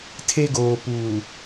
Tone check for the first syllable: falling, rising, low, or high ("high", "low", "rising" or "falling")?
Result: high